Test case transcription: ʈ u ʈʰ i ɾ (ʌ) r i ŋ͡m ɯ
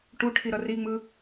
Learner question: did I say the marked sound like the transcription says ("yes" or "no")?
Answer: yes